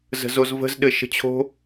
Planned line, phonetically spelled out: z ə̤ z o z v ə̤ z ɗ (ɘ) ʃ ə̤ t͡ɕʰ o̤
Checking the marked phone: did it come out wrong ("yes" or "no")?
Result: no